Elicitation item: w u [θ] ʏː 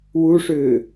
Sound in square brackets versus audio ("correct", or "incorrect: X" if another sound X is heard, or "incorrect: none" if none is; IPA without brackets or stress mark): incorrect: ʂ